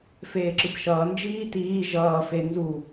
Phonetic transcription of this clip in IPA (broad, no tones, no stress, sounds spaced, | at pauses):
f eː ǁ ɯ b ʃ ʌː n d͡ʒ iː t iː ʒ ʌː f e n z u